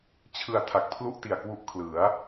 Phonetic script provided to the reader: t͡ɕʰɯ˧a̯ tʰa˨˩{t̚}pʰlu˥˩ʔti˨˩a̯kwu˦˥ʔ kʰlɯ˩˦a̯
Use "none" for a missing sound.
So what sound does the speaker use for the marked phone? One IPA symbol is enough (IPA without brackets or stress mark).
k̚